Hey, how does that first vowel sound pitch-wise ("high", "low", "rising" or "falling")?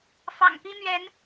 low